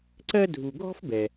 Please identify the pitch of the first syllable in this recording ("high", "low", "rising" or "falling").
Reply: high